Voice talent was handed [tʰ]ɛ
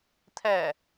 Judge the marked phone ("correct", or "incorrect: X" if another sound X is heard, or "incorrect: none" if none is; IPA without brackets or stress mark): correct